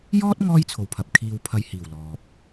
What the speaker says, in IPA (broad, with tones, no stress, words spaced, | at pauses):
jɔː˥t̚ ŋɔː˥jt͡sʰo˨wpʰɐ˨p̚ kʰiː˧wpʰɐ˧jhiː˨˩w lɔː˨p̚